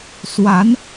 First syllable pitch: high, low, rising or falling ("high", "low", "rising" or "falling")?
rising